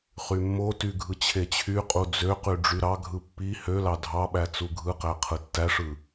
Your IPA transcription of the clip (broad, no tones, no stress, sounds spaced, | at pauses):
χ y mː o t y ɡʱ ɯ t͡ɕʰ e t͡ɕʰ y qʼ u d͡z ø q y ɖ͡ʐ y ɾ ɑ ɡʱ ɯ pː i h ø l ɑ dʱ ɑ ɓ æ t͡s u ɡʱ ɯ q æ qʰ ɯ tː æ ʂ ɯ